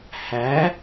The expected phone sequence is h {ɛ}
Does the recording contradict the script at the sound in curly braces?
yes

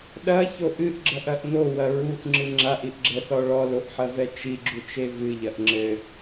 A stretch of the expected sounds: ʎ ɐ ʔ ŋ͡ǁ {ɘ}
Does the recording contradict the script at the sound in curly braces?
no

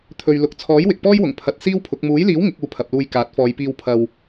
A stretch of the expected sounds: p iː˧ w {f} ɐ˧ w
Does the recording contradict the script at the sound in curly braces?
yes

